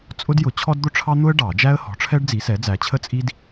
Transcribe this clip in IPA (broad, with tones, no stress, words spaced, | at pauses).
t͡sʼʊ˥djʊ˨˥ t͡ɕʰɔ˥d d̪ʊ˥ʈ͡ʂʰɑ˥n̪ʊ˥ə̯ ɖɑ˨˩˦ d͡ʒæ˥ə̯hɔ̤˨˥ʈ͡ʂʰɛ˥ɖ d͡zi˨˥sɛ˨˥d͡zæ˨˥ t͡ɕʰə˥t͡sʼi˥d